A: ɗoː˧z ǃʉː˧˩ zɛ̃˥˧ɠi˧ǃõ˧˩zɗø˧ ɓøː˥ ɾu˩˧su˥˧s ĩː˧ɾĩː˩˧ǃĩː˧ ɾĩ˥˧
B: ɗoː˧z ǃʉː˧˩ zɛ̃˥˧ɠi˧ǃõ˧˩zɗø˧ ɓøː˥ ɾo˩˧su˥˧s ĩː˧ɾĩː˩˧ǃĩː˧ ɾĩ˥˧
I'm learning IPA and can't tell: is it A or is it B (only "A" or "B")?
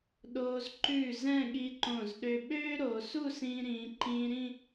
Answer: B